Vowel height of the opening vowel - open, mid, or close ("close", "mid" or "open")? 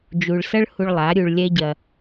close